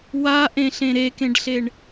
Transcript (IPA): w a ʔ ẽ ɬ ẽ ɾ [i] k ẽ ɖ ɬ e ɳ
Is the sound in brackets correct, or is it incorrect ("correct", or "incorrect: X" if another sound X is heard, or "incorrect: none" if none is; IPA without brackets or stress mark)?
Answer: incorrect: e